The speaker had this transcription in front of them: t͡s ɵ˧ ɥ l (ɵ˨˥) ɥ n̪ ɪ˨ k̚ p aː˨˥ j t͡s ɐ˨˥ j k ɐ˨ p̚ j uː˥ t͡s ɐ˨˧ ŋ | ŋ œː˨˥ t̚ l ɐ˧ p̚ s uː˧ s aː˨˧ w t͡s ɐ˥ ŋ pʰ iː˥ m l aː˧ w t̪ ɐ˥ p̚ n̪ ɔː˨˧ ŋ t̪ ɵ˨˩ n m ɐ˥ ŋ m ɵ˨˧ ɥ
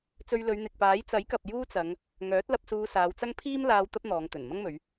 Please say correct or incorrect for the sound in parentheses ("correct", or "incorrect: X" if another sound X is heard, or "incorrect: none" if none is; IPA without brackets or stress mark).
incorrect: ɵ˨˧